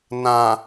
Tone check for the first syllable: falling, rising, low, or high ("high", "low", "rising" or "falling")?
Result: low